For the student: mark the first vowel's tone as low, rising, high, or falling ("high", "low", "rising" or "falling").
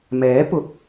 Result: rising